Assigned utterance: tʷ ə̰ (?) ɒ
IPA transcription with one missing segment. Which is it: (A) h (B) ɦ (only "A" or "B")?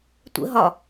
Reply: B